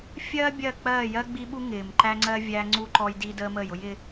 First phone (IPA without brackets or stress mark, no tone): fʲ